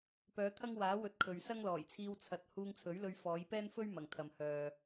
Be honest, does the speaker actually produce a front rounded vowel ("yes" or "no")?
yes